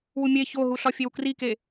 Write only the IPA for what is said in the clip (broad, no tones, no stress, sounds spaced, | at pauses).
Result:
w u mʲ e ç o ɦ u ɬ ɒ fʲ e w k r i k e